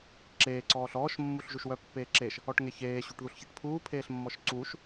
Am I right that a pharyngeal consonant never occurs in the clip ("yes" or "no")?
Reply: yes